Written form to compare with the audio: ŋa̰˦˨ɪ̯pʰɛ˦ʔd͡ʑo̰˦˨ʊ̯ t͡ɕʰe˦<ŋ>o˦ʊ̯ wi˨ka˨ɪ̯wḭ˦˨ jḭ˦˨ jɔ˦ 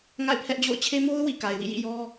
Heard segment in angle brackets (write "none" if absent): m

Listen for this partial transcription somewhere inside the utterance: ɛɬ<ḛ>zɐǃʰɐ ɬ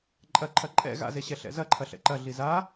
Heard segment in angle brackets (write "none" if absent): ɛ̰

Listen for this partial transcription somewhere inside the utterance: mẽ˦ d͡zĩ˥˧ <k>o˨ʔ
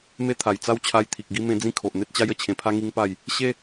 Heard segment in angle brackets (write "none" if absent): kʰ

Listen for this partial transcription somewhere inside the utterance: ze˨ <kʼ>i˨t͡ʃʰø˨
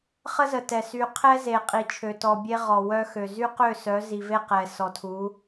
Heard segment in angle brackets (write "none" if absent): qʼ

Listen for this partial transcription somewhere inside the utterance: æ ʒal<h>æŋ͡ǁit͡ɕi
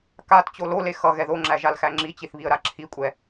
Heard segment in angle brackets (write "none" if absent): x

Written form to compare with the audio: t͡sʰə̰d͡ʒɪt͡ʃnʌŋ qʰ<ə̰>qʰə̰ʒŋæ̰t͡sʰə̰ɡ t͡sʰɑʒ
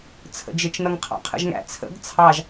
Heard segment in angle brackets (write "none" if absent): ɑ̰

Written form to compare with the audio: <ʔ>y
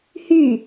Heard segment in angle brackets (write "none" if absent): h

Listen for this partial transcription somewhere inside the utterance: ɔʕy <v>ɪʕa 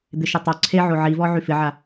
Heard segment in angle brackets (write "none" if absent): f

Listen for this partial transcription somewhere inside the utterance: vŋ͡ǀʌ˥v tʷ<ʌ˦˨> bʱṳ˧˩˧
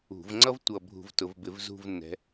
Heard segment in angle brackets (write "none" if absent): ʌ˦˨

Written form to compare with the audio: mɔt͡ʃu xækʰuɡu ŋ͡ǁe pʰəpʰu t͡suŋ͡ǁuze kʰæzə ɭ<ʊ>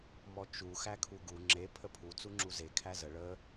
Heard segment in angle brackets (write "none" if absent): ə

